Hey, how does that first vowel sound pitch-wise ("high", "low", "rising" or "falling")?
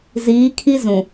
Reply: rising